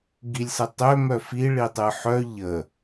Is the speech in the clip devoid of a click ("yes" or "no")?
yes